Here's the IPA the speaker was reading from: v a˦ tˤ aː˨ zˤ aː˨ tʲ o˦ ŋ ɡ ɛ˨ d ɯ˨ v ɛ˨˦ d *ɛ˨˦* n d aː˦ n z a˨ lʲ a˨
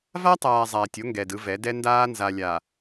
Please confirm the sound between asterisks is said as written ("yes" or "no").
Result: no